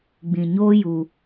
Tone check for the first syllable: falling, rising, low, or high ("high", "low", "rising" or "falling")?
low